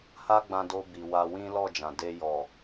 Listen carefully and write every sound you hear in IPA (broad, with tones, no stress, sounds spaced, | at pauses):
h a˦ ɡ͡b ã˧ d o˧ b i˨ w a˧ w ĩ˦ l ɔ˦˨ d͡ʒ ã˨ d e˧ j ɔ˨